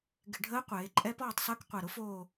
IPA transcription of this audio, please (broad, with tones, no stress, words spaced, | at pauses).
ɡɪ˧˩˧ɖʱəː˧˥ qʷeː˩˧ǃʼɛ˧˥pɔː˦˨tˤsəː˧˥k qʷɛ˨˩ɾʊ˧˥ foː˦˨